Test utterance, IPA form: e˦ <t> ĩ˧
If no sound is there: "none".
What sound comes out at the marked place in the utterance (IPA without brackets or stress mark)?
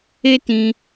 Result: t